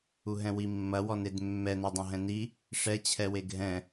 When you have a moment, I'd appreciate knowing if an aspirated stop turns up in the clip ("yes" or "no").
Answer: yes